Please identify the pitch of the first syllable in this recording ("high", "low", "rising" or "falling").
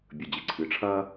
low